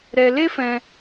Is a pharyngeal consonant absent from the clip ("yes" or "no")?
yes